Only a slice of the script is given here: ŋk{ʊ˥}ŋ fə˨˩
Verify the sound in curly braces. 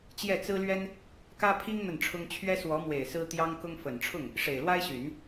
correct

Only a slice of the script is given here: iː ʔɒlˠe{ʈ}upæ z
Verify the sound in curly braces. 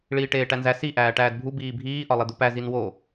incorrect: d̪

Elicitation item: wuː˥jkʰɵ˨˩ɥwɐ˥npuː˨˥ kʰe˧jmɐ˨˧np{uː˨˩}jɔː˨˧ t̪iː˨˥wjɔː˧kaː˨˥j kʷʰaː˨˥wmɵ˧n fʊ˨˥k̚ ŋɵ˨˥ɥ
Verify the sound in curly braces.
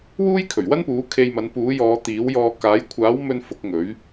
incorrect: uː˨˥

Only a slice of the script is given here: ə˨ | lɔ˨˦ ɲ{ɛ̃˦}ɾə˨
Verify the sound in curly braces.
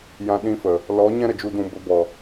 correct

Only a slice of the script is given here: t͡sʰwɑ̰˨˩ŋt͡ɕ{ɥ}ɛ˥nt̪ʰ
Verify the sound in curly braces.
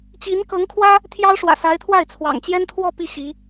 incorrect: j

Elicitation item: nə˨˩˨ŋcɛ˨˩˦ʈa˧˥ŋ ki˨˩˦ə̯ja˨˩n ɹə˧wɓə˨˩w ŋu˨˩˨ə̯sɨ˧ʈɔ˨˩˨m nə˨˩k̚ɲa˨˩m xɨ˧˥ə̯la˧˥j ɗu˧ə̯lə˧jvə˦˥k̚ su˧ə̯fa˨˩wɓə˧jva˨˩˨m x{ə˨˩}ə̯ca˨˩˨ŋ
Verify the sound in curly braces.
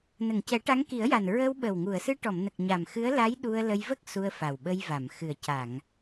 incorrect: ɨ˨˩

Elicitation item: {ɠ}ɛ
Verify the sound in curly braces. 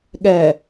correct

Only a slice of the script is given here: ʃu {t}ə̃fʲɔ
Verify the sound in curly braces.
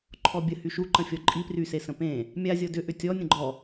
incorrect: ǃ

